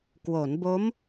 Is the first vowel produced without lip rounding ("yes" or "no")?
no